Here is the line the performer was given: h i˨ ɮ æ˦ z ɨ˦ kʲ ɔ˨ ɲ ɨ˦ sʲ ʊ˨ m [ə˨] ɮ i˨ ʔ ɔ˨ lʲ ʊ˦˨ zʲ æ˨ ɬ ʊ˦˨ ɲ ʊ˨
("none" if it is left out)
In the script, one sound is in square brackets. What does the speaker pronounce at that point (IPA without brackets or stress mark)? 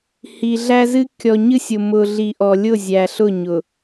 ʊ˨